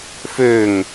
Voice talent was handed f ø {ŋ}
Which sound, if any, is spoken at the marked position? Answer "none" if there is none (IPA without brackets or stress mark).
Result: ŋ